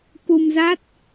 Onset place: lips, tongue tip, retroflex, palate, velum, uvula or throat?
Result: velum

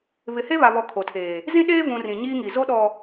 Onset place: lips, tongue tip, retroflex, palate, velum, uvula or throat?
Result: lips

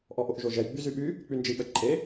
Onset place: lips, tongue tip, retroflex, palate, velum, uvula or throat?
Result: throat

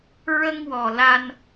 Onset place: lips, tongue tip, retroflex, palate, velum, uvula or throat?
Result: tongue tip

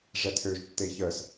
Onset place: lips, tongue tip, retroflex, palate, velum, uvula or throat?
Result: retroflex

